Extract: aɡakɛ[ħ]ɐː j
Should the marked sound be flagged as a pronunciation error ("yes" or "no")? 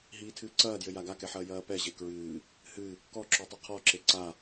no